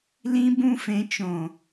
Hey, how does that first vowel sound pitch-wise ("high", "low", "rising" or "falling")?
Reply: high